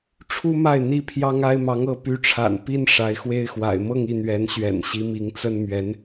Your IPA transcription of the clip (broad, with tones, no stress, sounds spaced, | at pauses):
ʈ͡ʂʰ u˥ m a˥˩ ɪ̯ n̪ i˥ pʰ j ɑ˥ ŋ a˥ ɪ̯ m ɑ˧˥ ŋ ɤ˧˥ p y˧˥ ʈ͡ʂʰ a̰˨˩ n p i˥ n ʂ a˧˥ ɪ̯ x w e˥ ɪ̯ x w a̰˨˩ ɪ̯ m ɤ˥˧ ŋ i˥˩ n̪ ɥ ɛ˧˥ n ɕ ɥ ɛ̰˨˩ n ɕ i˧˥ m i˧˥ ŋ t͡s ə˥ n m ɥ ɛ˧˥ n